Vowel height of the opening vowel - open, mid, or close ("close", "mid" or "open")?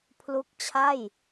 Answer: close